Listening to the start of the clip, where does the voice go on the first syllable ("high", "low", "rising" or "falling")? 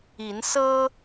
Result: rising